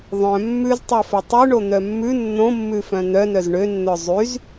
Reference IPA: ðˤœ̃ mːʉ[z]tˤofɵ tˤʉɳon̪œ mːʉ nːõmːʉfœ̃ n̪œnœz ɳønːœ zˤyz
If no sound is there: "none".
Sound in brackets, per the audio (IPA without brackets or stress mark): z